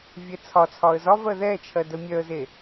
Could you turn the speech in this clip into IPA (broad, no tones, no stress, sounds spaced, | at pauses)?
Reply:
vʲ ɛ t͡sʰ ɒ t͡sʰ ɒ ə̯ z ɒ v ɜ ð ɛ t͡ʃʰ ɜ d ə mʲ œ ə̯ z e